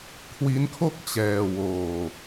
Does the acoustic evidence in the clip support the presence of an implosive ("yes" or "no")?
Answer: no